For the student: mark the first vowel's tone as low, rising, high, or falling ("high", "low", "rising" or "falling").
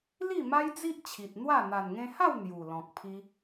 falling